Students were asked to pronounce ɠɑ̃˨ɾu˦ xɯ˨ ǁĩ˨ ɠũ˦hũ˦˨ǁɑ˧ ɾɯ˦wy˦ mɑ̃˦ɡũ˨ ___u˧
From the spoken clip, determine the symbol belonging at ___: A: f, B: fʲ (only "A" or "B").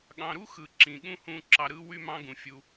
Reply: B